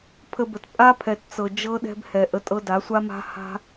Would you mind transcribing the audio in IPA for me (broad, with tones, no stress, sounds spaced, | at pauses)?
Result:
pʰ ə˧ b ə˨ t pʼ a˦ pʰ ɛ˨ t t͡s ɤ˨ d͡ʒ ɤ˦ ɗ ɛ̤˦ b h ɛ˨ ʔ ə˧ tʼ ɤ˦ d a˨˦ sʷ a˦ m a̤˦ h a̤˦